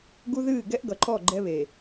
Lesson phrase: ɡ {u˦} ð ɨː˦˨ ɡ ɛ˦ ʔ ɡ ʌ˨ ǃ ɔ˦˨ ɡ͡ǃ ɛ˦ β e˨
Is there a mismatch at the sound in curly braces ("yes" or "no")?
no